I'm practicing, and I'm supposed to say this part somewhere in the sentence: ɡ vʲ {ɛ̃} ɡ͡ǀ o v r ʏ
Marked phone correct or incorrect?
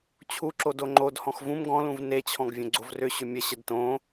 incorrect